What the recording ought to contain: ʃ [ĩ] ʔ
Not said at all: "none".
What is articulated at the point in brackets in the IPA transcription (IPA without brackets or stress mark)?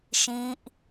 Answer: ĩ